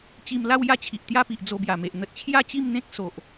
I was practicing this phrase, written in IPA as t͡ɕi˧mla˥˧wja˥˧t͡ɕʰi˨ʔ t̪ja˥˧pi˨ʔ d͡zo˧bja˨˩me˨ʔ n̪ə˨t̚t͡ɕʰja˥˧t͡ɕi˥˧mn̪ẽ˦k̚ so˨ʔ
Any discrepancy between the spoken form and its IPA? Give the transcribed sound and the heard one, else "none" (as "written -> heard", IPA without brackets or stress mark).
none